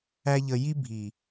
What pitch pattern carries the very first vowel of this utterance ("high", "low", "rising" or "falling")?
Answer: high